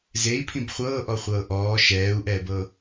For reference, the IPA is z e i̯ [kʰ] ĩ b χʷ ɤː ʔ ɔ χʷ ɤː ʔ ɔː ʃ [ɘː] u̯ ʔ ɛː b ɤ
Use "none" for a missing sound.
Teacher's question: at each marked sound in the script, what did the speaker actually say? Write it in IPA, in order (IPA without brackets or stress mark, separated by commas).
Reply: pʰ, ɛː